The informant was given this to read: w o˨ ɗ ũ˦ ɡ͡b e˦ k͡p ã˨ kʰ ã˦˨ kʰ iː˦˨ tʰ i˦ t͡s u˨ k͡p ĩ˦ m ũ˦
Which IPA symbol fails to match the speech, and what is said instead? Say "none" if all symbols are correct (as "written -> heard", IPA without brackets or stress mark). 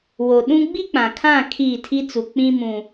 e˦ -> i˦